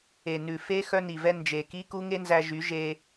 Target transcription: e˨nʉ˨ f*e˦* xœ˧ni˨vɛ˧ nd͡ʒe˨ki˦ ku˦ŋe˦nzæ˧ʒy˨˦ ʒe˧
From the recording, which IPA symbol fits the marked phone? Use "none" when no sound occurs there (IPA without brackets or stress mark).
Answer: e˦